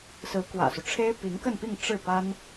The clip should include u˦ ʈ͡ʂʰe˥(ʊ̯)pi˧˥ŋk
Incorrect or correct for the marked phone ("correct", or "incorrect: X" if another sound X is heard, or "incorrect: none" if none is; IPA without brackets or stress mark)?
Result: incorrect: ɪ̯